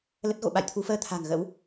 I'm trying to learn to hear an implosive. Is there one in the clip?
yes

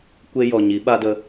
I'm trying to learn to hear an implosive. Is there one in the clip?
yes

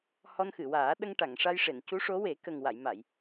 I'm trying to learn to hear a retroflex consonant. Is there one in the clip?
yes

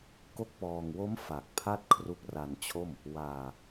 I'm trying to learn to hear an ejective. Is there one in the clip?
no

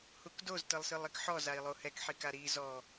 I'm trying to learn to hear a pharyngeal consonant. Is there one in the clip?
yes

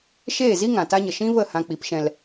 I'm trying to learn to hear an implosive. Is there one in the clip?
no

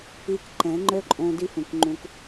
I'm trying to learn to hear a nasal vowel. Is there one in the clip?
yes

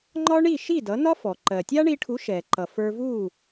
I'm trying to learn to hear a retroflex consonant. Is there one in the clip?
yes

